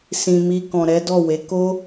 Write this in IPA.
sĩ˨mi˧ kɔ̃˨ɾɛ˨˦dɔ˦˨we˨˦ ko˦

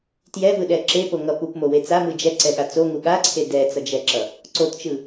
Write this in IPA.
tjɛvɯɗɛ ǁepoŋʌ pupmowe t͡samɯ d͡ʒɛǀɛɠa t͡soŋu ɠaǀʰe dɛt͡sʌd͡ʒɛǁʌ | ǀott͡ʃɯ

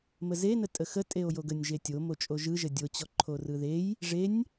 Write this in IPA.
məzenətʼə xə tʼeo̯joɡənʲʒe tʲomo t͡ʃʼoʒɯʒə dʲot͡ɕɔ ǃʰorɯðej | ʐenʲ

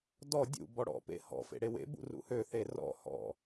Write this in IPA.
dɔ dʲṵ bɔɽɔ̰pḛ hɔ̰ fḛɽewḛbṵ rṵhøθe rɔ̰ hɔ̰

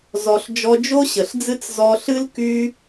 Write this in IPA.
zɔ˨ɬ d͡ʒɔ˧d͡ʒo˦ɕə˨ɬd͡zɨ˦t͡s zɔ˧ɬɨ˦l ky˦

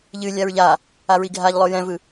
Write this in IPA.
ʎɨlʲaɹ ʎa | aɹiɡʱaʎlˠo jɛ̃vɯ

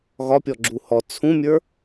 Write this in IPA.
ɣɒpʲɔɡ͡ǁu hɔ t͡sʰũmʲə˞

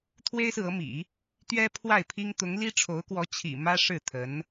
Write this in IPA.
t̪ʰwe˥ɪ̯sɹ̩˨ɤ˧˥mḭ˨˩˦ | t̪ɥɛ˥pʰwa˥˩ɪ̯pʰi˥ŋ t̪ʊ˧˥ŋli˥ ʈ͡ʂʰo˧˥ʊ̯kwɔ˧˥ t͡ɕʰḭ˨˩mä˥ ʂɻ̩˥˩t̪ʰə˧˥n

